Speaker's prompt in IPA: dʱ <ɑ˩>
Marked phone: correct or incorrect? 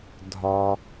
incorrect